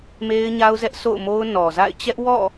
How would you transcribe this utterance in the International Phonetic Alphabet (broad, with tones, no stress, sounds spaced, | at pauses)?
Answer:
m e˦ ɪ̯ ɲ a˦ ʊ̯ z ɛ˦ ʔ s o̰˦˨ ʊ̯ m o˦ ʊ̯ n ɔ˨ z a̰˦˨ ɪ̯ t͡ɕ ɛ˦ ʔ w ɔ̰˦˨